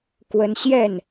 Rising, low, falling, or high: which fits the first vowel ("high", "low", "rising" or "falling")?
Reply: high